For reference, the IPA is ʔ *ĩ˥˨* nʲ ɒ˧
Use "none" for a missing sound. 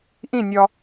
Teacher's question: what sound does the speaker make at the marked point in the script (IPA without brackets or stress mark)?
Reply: ĩ˥˨